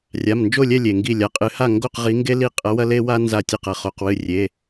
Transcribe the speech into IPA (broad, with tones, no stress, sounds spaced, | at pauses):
rʲ a˩˧˩ m n d͡ʒ o˥˨ lʲ ɛ˥˨ lʲ e˩ ŋ ɡ i˧˩ lʲ a˩ qʼ ɨ˨˥ h a˥˨ ŋ ɡ o˥˨ q ʁ i˨˥ ŋ ɡ e˦ l i˧˩ qʼ ɐ˨˥ w ɐ˦ l e˦ w a˦ n z a˧˩ tʲ e˧˩ q ɐ˩ χ o˩˧˩ q w ɨ˧˩ rʲ e˩˧˩